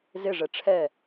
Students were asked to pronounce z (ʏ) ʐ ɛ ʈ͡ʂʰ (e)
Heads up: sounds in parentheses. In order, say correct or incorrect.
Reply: incorrect: ɪ, incorrect: ɛ

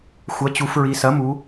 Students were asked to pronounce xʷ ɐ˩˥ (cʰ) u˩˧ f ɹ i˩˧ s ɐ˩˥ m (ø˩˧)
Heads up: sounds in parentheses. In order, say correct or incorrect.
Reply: incorrect: t͡ɕ, incorrect: u˩˧

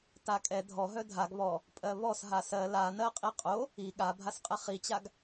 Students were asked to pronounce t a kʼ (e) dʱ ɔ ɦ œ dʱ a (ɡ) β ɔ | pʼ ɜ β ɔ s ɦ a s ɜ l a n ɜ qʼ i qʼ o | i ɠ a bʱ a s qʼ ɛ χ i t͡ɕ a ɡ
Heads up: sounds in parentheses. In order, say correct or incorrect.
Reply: incorrect: ɛ, correct

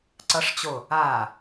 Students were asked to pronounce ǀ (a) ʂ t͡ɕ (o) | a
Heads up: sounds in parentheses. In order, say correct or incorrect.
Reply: incorrect: ʌ, correct

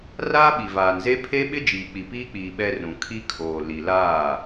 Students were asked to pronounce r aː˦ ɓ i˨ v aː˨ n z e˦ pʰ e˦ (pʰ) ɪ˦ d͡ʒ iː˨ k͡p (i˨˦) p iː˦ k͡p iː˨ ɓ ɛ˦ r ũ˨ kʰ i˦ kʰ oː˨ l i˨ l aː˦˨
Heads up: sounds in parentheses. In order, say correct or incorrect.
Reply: incorrect: ɓ, incorrect: i˨

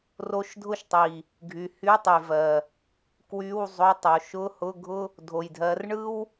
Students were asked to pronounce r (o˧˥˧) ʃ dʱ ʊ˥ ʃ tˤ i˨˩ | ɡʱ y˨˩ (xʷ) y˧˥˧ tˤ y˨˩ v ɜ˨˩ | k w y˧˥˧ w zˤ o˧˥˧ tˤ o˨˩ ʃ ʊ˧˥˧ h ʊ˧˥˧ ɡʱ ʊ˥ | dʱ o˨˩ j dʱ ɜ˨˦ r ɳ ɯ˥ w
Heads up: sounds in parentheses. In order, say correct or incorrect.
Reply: correct, incorrect: h

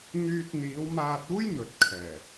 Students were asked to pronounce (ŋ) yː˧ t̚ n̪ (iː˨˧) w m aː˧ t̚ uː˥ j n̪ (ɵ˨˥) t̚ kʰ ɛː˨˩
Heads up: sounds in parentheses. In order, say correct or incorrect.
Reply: correct, correct, correct

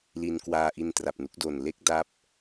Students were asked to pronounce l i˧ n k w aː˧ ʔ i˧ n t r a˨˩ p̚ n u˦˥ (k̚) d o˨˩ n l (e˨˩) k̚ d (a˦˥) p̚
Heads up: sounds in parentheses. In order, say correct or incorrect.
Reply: correct, incorrect: e˥˩, correct

